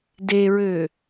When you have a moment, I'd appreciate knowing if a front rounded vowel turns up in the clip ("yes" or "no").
yes